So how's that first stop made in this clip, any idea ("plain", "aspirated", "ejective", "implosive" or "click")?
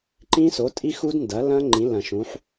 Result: click